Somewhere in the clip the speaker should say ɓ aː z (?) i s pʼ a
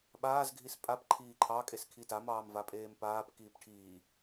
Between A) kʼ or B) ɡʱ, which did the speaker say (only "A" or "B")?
B